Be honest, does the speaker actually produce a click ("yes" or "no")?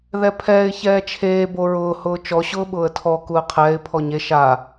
no